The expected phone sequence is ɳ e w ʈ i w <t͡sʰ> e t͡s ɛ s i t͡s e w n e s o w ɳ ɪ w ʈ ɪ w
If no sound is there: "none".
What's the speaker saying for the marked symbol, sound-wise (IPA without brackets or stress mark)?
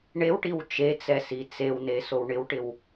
t͡ʃ